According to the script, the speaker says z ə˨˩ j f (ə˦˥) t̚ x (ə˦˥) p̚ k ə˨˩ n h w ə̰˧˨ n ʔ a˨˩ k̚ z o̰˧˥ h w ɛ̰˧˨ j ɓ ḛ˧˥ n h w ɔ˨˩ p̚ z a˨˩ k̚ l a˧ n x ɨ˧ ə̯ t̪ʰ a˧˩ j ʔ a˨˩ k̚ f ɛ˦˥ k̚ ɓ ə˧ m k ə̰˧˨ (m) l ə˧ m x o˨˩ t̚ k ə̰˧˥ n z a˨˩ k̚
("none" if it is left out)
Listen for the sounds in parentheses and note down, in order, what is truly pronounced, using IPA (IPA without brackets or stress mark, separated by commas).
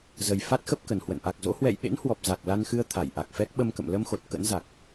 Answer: a˦˥, ə˦˥, m